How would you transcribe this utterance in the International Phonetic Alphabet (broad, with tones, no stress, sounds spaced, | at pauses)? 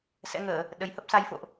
s ɛ̰˧˥ ŋ əː˧˩˨ | ɗ ə˨˩ j h ə˦˥ p̚ s a˨˦ j f o̰˧˨ ʔ